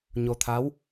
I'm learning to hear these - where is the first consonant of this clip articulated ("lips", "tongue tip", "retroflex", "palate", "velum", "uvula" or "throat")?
palate